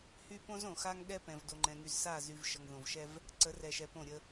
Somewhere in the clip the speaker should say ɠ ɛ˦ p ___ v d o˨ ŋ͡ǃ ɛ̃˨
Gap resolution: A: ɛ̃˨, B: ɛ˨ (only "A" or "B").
A